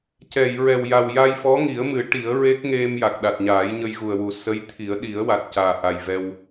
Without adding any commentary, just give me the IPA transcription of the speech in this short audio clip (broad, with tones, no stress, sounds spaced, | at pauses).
c ɛ˨˩˨ j ɹ ɛ˨˩ w j a˨˩ w j a˧ j f ɔ˧˥ ŋ i˨˩˦ ə̯ m ɨ˨˩˦ ʈ i˨˩˦ ə̯ ɹ e˦˥ k̚ ŋ e˧ m j a˨˩ k̚ ɗ a˨˩ t̚ ɲ aː˨˩˦ j ɲ ə˧ j ɣ u˨˩ ə̯ w u˨˩˦ s ə˧˥ j t̪ʰ i˨˩˦ ə̯ ɗ i˨˩˦ ə̯ w a˨˩ t̚ c aː˨˩ ʔ a˨˩ j v ɛ˧ w